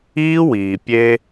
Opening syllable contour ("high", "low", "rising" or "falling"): high